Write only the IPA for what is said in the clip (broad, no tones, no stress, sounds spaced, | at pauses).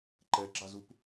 ǃ ɛ ɡ͡ǁ ɑ z u p